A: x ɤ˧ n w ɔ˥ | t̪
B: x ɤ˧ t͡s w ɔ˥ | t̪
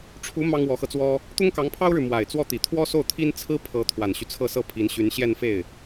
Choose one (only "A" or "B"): B